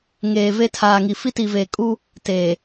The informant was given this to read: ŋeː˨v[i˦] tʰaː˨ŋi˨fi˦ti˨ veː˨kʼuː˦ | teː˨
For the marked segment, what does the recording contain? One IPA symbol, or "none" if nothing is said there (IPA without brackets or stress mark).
e˦